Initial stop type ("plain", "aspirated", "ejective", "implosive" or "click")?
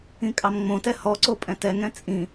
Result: ejective